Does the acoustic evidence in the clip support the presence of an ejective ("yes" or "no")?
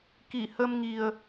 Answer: no